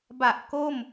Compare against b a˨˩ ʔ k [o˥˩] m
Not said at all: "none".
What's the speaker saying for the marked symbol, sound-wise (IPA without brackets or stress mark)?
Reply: o˥˩